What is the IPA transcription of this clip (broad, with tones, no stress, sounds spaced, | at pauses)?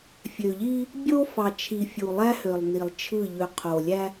fʲ ø˨ ʎ i˦ | bʲ o˦ f ɑ˨ t͡ʃʰ i˨ fʲ u˨ lˠ æ˦ h ø˨ lˠ n i˨ lˠ t͡ʃʰ ɯ˦˨ ʎ ø˨ qʰ o˨ lʲ æ˦